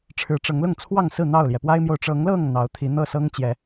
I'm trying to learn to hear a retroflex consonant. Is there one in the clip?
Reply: yes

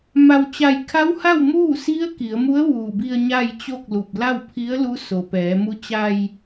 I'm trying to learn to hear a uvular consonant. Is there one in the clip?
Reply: no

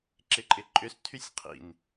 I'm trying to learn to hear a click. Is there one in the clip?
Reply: yes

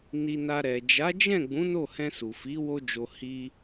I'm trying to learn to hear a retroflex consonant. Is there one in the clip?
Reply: no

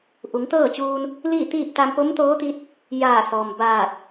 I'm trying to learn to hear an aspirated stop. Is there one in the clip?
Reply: no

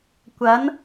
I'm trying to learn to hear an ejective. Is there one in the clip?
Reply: no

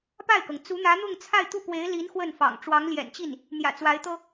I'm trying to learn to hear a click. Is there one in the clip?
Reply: no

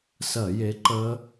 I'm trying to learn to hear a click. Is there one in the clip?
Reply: yes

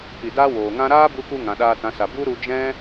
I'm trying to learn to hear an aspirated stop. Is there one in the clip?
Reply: no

